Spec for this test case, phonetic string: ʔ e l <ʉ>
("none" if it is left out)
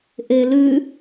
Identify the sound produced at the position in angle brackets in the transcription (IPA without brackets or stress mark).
ʉ